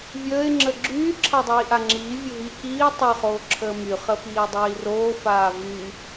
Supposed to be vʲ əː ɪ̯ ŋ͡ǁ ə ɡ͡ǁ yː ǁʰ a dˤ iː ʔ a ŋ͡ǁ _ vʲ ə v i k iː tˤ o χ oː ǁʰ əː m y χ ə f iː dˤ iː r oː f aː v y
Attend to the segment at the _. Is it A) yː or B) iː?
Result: B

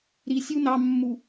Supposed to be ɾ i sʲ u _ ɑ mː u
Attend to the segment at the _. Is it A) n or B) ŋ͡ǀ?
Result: A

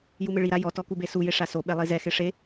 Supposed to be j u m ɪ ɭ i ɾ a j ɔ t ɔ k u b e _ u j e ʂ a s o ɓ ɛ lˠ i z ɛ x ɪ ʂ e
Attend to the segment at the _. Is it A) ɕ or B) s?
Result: B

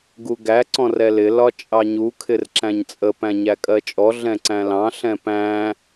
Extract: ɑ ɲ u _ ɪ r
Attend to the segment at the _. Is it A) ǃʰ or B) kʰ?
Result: B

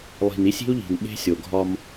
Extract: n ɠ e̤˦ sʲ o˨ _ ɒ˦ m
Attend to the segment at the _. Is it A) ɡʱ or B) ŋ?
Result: A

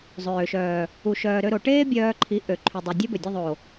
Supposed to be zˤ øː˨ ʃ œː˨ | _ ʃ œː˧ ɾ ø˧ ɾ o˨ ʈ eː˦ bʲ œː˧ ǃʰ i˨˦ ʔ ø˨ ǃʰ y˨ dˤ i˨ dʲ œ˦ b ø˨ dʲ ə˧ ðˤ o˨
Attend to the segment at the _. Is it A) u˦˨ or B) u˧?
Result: B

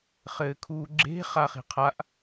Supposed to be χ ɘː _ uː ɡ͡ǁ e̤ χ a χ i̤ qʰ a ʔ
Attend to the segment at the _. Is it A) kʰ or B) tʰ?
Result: A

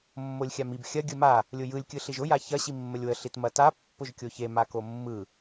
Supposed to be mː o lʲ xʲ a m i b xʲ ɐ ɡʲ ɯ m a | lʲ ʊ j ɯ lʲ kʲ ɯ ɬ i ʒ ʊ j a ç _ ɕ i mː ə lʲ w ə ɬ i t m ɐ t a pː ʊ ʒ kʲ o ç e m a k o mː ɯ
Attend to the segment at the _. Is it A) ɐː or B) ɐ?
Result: B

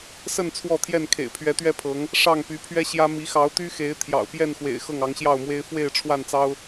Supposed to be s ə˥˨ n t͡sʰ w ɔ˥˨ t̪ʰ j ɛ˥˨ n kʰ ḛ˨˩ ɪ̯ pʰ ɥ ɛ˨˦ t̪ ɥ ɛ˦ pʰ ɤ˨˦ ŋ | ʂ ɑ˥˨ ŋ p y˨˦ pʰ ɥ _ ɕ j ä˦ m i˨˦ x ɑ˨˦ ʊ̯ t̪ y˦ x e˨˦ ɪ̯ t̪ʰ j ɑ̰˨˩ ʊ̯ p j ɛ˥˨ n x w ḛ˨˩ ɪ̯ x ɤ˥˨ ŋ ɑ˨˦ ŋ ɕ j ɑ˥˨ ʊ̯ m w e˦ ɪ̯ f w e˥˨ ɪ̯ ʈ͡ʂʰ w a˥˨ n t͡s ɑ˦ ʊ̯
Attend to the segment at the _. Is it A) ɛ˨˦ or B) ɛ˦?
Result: B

